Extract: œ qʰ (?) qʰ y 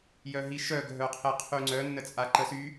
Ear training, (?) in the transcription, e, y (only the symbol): e